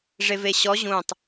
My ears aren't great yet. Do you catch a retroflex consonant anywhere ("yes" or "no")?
yes